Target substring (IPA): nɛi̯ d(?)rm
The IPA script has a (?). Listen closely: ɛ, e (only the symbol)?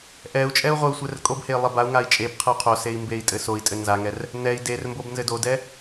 e